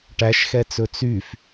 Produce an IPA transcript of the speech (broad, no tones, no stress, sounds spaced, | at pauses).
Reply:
ʈ æ ʃ x ɛ t͡s ɵ t͡s y f